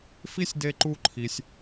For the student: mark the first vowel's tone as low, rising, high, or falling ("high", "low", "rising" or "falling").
high